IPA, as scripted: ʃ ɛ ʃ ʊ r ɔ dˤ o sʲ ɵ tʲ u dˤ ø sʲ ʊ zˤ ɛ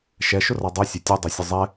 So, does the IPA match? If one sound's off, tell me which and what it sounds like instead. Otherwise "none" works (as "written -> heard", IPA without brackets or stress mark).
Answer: ø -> u